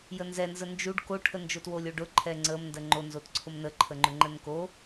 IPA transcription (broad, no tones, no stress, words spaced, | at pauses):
jənzɛnzə nd͡ʒuɖ koʈʰə nd͡ʒotwolʲoɖʊ ǃʰɛŋ͡ǀəmndə ŋ͡ǃonzotǀʰʊm nəǃʰəŋ͡ǃʊ ŋ͡ǃənko